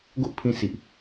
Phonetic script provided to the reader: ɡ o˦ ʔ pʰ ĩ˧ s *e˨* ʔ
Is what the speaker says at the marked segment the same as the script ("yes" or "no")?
no